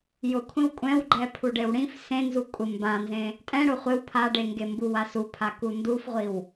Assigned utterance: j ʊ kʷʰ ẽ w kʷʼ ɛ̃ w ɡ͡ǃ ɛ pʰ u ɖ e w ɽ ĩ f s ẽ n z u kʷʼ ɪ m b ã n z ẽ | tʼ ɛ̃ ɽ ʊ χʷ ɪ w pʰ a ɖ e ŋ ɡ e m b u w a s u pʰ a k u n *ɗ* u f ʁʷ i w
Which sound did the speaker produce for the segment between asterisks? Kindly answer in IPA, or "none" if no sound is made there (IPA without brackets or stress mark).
d